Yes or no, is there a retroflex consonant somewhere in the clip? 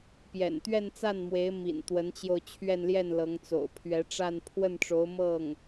yes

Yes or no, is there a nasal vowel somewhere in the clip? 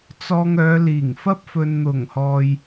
no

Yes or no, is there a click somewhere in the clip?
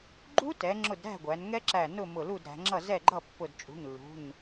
yes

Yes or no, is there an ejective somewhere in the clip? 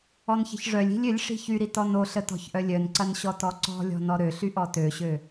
no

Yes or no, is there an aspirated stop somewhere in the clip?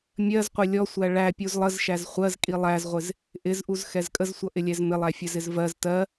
no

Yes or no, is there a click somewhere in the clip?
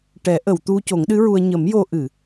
no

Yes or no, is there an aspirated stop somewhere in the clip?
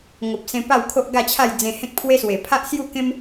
yes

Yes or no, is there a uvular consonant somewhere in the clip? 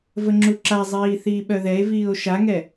no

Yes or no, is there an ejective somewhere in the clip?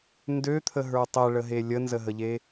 no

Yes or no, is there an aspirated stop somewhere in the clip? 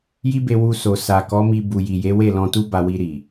no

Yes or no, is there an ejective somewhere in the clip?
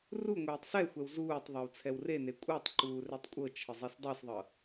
yes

